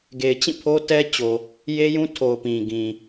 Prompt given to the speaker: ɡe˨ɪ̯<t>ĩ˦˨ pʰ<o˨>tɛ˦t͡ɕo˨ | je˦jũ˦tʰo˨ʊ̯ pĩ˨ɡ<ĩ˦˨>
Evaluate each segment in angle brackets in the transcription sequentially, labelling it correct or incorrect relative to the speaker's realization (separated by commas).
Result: incorrect, incorrect, incorrect